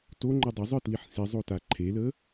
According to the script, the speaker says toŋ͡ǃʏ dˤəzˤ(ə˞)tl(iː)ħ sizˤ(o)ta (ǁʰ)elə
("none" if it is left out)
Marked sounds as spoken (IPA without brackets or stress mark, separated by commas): ə˞, i, o, ǃʰ